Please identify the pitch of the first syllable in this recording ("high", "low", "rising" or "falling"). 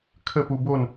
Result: falling